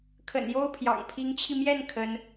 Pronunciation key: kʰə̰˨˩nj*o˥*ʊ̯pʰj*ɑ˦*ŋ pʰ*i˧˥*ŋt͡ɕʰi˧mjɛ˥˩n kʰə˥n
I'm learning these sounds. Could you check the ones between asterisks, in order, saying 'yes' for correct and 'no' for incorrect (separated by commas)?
yes, no, yes